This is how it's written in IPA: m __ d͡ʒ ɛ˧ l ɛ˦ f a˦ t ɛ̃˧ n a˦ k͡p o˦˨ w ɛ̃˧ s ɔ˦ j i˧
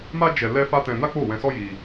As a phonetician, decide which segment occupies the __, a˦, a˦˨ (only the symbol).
a˦